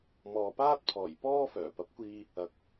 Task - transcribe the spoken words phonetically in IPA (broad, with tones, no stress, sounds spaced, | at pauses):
m ɔː˨ p aː˥ t̚ pʰ ɔː˨˩ j p ɔː˥ f œː˨˩ p ɐ˨˥ p̚ kʷ iː˧ | ɐ˨ k̚